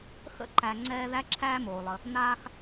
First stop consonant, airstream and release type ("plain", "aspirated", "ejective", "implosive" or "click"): click